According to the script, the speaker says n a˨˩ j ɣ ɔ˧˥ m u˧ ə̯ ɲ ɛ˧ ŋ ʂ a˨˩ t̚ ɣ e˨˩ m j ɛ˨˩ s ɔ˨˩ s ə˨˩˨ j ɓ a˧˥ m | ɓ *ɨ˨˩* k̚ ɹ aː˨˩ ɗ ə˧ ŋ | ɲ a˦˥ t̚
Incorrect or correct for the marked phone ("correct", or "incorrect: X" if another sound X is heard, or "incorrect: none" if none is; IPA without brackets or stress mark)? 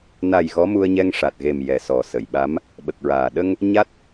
incorrect: ə˨˩